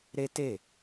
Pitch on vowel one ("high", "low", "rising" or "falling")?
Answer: high